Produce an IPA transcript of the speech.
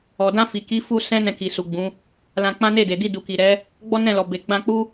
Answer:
ɔ˨ d ã˧ f i˨ k i˨˦ f u˧ s ɛ̃˦ n ɛ̃˧ k i˨ s u˨ ɡ͡b ũ˨˦ | l ã˧ k͡p ã˦ n e˦˨ d e˨ d i˧ d u˨ k i˨ ɾ ɛ˨˦ | ɡ͡b ɔ˦ n ɛ̃˦˨ l ɔ˨ b e˨ ɡ͡b ã˧ k͡p u˦

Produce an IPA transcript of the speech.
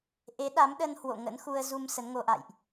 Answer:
ʔ e˨˦ ɗ a˨˦ m ɗ ə˧ n h w o̰˧˨ ŋ ə̰˧˥ n x u˧ ə̯ z u˧ m s ə˨˦ n ŋ o˧ ʔ a̰˧˨ j ʔ

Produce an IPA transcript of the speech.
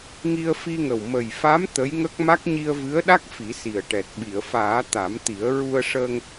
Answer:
ŋ i˧ ə̯ f i˧ ŋ ə˨˩ w m ə˨˩ j f a˧˥ m t̪ ə˧˥ j ŋ ə˦˥ k̚ m a˦˥ k̚ ɲ i˧ ə̯ v ɨ˧˥ ə̯ ɗ a˦˥ k̚ f i˨˩˦ s i˨˩ ə̯ ʈ ɛ˨˩ t̚ ɓ i˨˩˨ ə̯ f aː˨˩˦ t̪ a˨˩˦ m t̪ i˨˩˦ ə̯ ɹ u˧ ə̯ ʂ əː˧ ŋ

